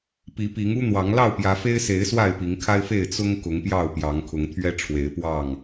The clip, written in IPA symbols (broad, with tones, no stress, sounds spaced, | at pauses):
p i˨˦ p i˨˦ ŋ u˦ n̪ w ɑ˨˦ ŋ l ɑ˥˨ ʊ̯ p j ä˨˦ f e˦ ɪ̯ s e˨˦ ɪ̯ s w a˥˨ ɪ̯ p i˨˦ ŋ kʰ a˦ ɪ̯ f e˥˨ ɪ̯ t͡s ʊ˦ ŋ k ʊ˨˦ ŋ p j ɑ˥˨ ʊ̯ p j ɑ˨˦ ŋ kʰ ʊ˨˦ ŋ t̪ʰ ɥ ɛ˦ ʈ͡ʂʰ w e˨˦ ɪ̯ p w ɑ˥˨ ŋ